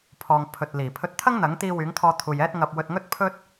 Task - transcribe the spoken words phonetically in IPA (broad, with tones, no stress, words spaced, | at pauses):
pʰɔː˨ŋ pʰɵ˨t̚liː˨˩ pʰɵ˧t̚ t̪ʰɐ˥ŋn̪ɐ˨˥ŋt̪iː˧ wyː˨˥ŋt̪ʰɔː˧t̪ʰuː˨j ɛː˥t̚ŋɐ˧p̚ wɵ˧t̚ŋɵ˥t̚ pʰɵ˥t̚